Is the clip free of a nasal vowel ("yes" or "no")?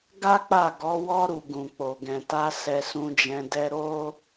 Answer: no